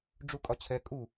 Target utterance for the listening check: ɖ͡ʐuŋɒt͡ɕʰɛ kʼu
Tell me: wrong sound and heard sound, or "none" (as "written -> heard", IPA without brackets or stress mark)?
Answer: ŋ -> kʼ